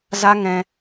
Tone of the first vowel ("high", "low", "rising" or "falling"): high